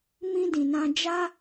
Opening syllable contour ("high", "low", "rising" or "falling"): high